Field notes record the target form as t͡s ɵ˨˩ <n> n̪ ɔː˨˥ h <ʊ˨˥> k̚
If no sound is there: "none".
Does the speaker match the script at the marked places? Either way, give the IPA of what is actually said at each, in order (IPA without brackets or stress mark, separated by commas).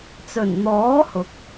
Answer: n, ʊ˨